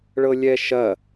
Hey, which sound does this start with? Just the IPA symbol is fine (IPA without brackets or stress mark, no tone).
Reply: ɭ